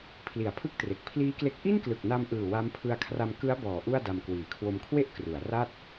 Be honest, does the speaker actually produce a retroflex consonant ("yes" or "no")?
no